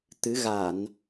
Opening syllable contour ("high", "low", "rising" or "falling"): rising